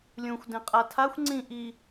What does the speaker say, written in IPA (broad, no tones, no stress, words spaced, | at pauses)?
lʲũxʷ dẽqʼatʰaxʷ ŋ͡ǀĩ ʔi